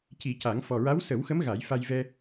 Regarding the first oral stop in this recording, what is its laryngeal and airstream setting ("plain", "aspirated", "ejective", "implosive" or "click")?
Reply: plain